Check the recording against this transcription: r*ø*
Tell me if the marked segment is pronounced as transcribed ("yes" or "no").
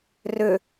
yes